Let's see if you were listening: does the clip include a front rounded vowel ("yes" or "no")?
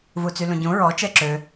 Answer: yes